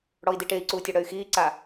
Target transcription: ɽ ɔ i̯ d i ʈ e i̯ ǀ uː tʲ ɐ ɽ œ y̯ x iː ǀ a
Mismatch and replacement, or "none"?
none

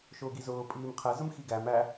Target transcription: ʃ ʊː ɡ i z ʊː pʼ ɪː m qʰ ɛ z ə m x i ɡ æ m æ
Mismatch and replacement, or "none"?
ɪː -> iː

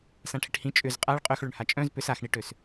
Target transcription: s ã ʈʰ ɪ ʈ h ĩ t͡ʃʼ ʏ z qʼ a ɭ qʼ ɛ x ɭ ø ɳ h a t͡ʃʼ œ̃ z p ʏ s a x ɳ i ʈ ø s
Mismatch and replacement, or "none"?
ɛ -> œ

